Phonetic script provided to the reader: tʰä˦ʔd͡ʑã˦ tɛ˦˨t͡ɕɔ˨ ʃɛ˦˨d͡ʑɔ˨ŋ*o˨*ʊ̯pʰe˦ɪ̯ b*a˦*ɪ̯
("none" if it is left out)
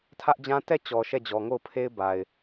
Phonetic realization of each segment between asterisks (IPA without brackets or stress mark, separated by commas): o˦˨, a˨